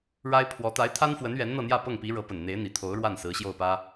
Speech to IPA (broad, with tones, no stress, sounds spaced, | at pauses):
ɻ a˥ ɪ̯ pʰ w ɔ˧˥ t̪ a˧˥ ɪ̯ t̪ʰ a˥ n f w ə˧˥ n ɥ ɛ˧˥ n n̪ ɤ˥˧ n̪ j ä˥˧ p ɤ˥˩ ŋ p i˧˥ ɻ ɤ˧˥ p ə˨˩ n n̪ e˧˥ ɪ̯ n̪ i˨˩ t̪ʰ o˧˥ ʊ̯ ɻ w a˥˩ n s ɹ̩˧˥ ɕ j o˥˩ ʊ̯ p ä˥